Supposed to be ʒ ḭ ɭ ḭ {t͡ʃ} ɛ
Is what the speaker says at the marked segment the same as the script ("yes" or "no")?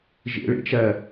yes